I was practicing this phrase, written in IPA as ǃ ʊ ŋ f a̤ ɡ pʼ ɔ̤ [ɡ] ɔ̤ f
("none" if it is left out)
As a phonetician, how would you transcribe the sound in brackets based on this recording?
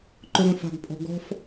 ɡ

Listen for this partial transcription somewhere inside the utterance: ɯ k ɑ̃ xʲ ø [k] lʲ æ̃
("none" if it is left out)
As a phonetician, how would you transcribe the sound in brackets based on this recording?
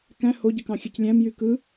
c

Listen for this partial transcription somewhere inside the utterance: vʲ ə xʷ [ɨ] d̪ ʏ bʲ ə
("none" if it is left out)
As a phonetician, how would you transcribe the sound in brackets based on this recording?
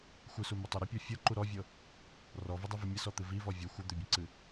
ɨ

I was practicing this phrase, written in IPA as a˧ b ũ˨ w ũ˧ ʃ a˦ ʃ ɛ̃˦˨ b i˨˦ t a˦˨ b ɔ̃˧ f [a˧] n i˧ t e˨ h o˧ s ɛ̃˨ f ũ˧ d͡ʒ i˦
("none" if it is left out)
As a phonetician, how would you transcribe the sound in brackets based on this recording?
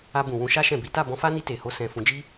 a˦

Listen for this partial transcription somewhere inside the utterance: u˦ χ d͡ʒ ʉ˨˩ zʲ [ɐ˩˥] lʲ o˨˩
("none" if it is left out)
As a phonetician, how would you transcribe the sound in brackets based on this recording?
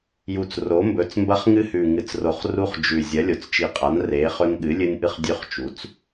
ɐ˩˥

